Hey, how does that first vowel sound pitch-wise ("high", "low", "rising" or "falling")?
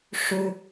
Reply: high